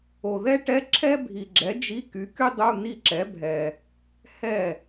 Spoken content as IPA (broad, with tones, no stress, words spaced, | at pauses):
o˨ðɛ˥ʈɛ˧˥˧ ǁʰɛ˥bʱi˨ɡ͡ǁɛ˨˥ d͡ʒi˧˥˧ky˨˥ky˥ dˤu˧˥˧ni˥˩ǁɛ˨˥bʱɛ˨ | hɛ˥˩